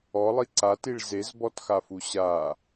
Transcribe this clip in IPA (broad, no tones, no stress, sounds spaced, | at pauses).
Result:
ɔ lˠ i ǀ a t i ɭ z e z b ɔ t x a f u ɕ a